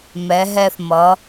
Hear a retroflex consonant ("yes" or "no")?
no